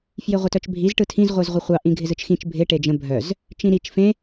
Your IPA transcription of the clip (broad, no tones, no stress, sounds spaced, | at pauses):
f j ɪ ʁʷ ə t œ t͡ʃ bʱ i z ʈ ɯ tʰ ĩ z ʁʷ i z ʁʷ ə χʷ ɑ ʔ ĩ ɡʱ ɪ z ɯ t͡ʃ x ĩ t͡ʃ bʱ ɪ ʈ e d͡ʒ ə̃ bʱ œ z | t͡ʃ ĩ ɾ i t͡ʃ f ẽ